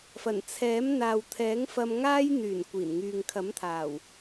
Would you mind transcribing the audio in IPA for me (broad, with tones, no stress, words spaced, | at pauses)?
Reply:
fɐ˨˩n t͡sʰɛː˨˥m n̪aː˨wt̪ʰɛː˨˥ŋfɐ˧m ŋaː˥j n̪yː˨˩n kʷiː˨˩nŋyː˨ŋkʰɐ˨˥mt̪ʰaː˨˩w